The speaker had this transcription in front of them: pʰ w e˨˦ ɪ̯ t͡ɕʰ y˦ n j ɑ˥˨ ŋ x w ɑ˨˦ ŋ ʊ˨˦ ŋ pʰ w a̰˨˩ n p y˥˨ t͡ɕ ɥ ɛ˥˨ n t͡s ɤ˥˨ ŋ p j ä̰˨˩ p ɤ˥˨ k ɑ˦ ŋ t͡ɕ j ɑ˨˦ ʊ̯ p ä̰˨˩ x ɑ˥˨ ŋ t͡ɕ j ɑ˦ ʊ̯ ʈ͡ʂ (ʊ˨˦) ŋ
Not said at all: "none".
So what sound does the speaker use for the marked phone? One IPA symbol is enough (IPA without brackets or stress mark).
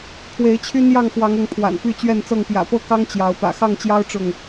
ʊ˥˨